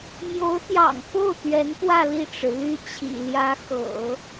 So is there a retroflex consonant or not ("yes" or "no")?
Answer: yes